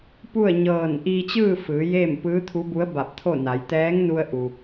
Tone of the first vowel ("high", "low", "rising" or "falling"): falling